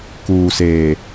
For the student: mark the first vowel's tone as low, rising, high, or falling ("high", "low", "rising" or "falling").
low